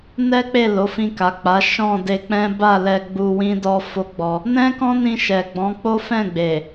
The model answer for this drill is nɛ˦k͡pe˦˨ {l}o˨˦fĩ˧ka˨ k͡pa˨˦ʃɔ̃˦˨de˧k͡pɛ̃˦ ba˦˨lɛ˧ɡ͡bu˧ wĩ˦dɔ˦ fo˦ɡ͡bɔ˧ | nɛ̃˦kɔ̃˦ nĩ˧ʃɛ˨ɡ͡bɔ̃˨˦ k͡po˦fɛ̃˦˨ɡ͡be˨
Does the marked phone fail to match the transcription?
no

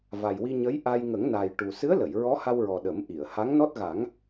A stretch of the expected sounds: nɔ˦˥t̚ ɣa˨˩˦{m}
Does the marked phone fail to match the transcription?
yes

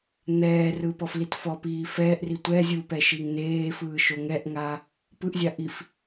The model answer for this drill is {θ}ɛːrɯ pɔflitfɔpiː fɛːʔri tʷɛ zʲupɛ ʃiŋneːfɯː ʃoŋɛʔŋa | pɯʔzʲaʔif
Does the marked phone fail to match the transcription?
yes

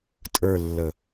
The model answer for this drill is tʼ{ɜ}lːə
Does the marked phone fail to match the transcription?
yes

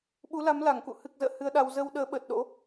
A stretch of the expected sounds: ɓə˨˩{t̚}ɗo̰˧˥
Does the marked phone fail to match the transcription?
no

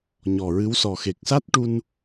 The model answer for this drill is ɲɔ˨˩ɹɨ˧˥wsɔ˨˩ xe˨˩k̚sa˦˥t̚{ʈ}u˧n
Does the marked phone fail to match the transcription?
no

